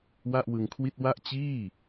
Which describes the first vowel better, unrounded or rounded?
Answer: unrounded